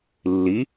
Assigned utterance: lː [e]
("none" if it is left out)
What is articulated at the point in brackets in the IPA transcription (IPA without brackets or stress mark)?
i